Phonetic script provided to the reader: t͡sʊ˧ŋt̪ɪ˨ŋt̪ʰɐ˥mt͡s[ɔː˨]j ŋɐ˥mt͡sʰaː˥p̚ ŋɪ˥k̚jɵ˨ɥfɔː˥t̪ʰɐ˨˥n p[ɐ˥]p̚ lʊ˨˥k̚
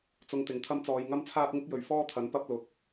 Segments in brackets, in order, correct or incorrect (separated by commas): incorrect, incorrect